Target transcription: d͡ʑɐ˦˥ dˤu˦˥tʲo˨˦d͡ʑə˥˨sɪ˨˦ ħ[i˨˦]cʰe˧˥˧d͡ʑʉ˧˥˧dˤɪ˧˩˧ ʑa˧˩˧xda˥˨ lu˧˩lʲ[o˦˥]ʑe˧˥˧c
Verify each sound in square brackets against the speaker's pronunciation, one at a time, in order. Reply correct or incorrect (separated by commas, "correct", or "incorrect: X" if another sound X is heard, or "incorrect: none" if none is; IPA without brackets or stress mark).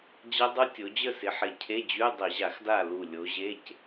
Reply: incorrect: ɪ˨˦, incorrect: o˨˦